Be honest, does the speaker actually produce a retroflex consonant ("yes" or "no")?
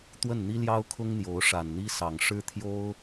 yes